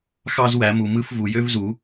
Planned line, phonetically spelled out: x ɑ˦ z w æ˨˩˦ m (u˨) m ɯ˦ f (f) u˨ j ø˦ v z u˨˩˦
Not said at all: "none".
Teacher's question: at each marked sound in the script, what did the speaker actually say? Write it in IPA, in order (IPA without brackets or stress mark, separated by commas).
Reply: u˨, v